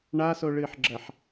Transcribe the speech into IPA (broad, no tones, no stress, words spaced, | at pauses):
ɳasoɭɨːħɡ͡ǁɐħ